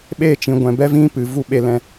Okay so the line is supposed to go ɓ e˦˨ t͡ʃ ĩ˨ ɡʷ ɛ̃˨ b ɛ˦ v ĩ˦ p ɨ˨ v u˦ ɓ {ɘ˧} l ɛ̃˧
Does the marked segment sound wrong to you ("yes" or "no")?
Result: yes